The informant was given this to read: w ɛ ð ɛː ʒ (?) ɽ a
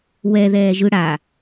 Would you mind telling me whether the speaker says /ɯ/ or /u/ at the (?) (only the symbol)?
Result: ɯ